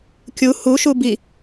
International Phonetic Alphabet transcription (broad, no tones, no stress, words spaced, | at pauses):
kʲu hu ʃubi